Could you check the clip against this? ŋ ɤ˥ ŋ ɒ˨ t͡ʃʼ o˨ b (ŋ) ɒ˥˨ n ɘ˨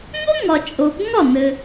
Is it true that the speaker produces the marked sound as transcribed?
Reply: yes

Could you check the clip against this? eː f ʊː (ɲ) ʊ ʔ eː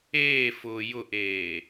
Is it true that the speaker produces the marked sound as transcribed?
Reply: no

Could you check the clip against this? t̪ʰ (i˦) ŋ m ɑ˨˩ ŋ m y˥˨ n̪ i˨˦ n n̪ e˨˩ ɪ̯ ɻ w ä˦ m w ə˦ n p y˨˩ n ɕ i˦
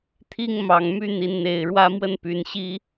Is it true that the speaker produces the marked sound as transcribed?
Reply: yes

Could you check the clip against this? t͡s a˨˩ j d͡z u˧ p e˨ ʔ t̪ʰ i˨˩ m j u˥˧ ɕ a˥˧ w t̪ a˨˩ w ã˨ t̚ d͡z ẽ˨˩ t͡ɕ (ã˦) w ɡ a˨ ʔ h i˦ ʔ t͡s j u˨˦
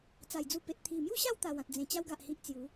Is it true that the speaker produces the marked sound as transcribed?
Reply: no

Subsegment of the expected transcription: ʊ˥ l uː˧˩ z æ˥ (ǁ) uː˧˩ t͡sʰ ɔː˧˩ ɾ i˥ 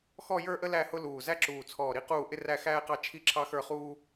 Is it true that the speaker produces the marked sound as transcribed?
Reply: yes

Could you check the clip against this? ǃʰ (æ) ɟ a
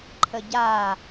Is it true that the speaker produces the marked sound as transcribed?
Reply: no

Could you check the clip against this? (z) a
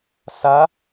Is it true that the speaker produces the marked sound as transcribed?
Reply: no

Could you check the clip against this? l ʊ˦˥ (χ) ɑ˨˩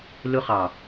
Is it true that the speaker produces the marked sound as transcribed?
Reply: yes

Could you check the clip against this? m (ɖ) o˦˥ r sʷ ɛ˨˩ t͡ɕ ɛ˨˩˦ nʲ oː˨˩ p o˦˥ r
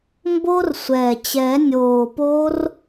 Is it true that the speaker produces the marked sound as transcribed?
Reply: no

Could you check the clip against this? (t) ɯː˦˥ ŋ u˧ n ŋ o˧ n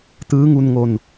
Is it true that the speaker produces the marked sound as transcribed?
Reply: yes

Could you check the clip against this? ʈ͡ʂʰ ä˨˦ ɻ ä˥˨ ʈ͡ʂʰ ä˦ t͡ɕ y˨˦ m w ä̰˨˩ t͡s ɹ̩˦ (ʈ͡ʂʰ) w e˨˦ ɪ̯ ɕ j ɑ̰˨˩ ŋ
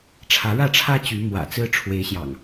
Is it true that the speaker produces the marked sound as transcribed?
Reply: yes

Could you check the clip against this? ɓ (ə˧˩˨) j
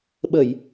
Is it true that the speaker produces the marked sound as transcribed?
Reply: yes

